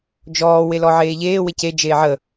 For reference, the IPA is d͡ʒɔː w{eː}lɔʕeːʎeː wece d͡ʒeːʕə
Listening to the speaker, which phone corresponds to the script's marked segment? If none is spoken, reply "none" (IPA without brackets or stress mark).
e